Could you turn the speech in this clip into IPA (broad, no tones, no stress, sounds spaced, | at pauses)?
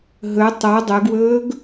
ɦ ɵ tˤ o dˤ ɵ ɡ w ɵː ɡ